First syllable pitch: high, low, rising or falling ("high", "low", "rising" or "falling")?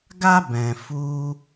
high